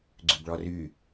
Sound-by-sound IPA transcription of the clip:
ɡ͡ǀʉbɭɔry

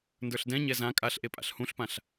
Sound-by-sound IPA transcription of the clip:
ndə˞ɬdɛ̃ɲɛ zã kʼaɬ ʔepʼa̰ɬhũɬpãɬ

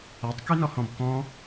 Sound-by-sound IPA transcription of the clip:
atˤkynɔhɔ̃b kɔ̃

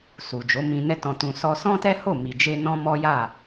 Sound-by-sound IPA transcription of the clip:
su˨d͡ʒo˨˦mĩ˧ nɛ˦tɔ̃˧tũ˧ sɔ˧sɔ̃˦tɛ˦ho˦˨ mi˨d͡ʒe˧ nɔ̃˦mɔ˦ ja˦˨

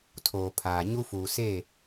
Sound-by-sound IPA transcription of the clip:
tʰoː˨pʰaː˨ ɲu˦fuː˨ se˦˨

